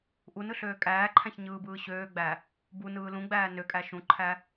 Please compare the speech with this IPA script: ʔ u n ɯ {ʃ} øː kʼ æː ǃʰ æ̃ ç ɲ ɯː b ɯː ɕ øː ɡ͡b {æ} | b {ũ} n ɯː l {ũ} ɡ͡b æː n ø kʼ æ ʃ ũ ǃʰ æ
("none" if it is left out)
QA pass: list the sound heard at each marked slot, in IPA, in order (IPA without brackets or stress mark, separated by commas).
ɬ, æ, u, ũ